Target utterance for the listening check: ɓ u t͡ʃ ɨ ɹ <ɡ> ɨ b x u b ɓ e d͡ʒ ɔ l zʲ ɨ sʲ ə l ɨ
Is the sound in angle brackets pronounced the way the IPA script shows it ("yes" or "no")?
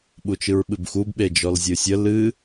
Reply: no